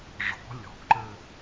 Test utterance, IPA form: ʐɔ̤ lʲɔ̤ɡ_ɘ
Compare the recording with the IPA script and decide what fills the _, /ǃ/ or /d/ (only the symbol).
ǃ